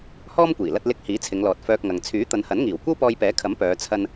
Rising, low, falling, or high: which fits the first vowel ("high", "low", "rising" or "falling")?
high